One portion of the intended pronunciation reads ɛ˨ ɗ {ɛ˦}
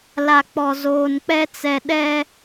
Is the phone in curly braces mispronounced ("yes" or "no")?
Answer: no